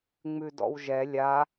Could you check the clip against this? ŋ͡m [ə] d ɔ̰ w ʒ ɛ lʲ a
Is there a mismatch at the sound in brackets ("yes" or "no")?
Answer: yes